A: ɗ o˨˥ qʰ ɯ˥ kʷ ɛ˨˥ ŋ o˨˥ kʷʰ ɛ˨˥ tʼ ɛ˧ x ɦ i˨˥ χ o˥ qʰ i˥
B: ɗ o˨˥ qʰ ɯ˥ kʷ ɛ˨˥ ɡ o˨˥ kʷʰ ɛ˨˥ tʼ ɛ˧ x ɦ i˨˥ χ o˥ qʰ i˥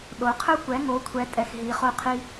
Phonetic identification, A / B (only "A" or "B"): A